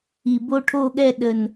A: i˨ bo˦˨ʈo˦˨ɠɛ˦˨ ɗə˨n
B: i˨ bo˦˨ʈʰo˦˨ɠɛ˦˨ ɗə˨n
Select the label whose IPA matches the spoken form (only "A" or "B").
B